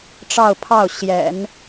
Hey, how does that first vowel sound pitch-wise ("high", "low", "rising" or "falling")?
falling